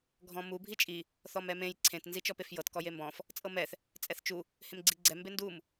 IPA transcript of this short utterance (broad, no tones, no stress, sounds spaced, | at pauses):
ɡʱ ɔ̃ m u bʱ i t͡ʃʼ i | θ ɔ m ɛ m ẽ j ǀʰ ẽ t n z i t͡ʃ ɔ p e f j ɤ t k ɔ j e m b ɔ̃ f | t͡sʼ ɤ m ɛ θ | t͡sʼ ɛ θ t͡ʃ u | h ẽ m ɡ͡ǀ i ɡ͡ǀ ɛ m b e n d u m